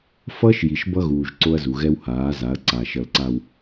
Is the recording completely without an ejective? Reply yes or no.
yes